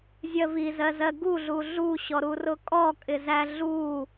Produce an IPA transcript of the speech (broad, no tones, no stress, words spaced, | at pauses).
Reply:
zʲɜvizɜzɜ ɡuɮu ɮuɕɔɾurʊ kʼɔkʼɪzæ ɮu